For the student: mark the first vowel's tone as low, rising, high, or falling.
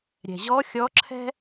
low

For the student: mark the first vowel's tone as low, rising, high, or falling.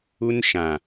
high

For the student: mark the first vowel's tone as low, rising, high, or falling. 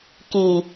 low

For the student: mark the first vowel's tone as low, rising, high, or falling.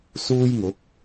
high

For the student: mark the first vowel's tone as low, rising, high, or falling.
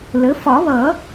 rising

